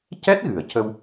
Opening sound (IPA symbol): c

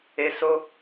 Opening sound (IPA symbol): e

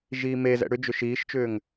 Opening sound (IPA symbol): ʒ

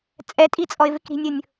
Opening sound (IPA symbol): t͡sʼ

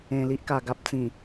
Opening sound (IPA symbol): ẽ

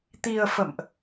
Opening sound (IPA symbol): t̪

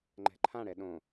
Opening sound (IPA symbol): ŋ͡ǃ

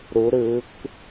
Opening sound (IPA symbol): ɾ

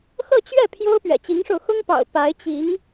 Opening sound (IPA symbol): x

